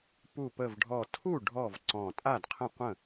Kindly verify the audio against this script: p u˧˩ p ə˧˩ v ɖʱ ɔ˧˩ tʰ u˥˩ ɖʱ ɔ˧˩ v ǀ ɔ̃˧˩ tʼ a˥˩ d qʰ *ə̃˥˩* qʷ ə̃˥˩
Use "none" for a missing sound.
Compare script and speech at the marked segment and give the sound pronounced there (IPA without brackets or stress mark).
ə̃˥˩